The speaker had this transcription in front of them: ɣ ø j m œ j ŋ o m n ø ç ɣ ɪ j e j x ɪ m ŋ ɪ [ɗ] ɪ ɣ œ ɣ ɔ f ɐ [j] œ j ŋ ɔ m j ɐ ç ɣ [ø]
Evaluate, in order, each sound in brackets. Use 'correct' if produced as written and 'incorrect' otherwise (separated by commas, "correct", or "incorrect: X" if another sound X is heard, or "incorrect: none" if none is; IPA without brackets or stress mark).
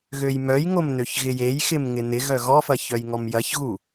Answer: incorrect: n, incorrect: ç, incorrect: u